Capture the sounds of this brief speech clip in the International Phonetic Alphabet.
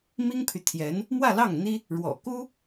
m i˥ ŋ pʰ y˨ t̪ʰ j ɛ˧˥ n | m w ä˥˧ l ɑ˥˩ ŋ n̪ i˥ | ɻ w ɔ̰˨˩ k u˥

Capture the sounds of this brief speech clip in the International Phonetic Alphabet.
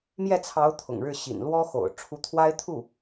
m j ɛ˥˩ t͡sʰ ɑ˧˥ ʊ̯ t̪ʰ ʊ̰˨˩ ŋ ɻ ɻ̩˥˩ ɕ ḭ˨˩ n l w ɔ˥ x o̰˨˩ ʊ̯ ʈ͡ʂʰ u˧˥ t̪ʰ w a˥ ɪ̯ t̪ʰ u˥˩

